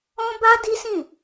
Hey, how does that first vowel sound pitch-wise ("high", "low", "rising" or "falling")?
high